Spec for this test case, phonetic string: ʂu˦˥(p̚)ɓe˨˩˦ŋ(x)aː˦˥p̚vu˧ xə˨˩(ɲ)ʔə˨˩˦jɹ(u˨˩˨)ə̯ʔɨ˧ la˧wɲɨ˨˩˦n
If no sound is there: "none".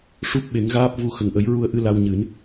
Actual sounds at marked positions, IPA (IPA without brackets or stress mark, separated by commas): p̚, ɣ, ŋ, u˧